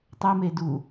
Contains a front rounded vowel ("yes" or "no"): no